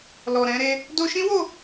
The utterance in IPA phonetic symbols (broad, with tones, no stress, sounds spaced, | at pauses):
l ɔ˨ ɾ ɛ̃˧ ɾ e˧ | d o˧ ʃ ĩ˦ w o˦˨